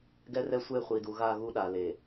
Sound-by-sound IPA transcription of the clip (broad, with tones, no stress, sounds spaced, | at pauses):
ɡ ɛ˦ r ɛ˦ sʷ e˦˨ χʷ i˨ d u˨ ɣ a˦˨ ɣ u˦ ɗ a˨ l e˨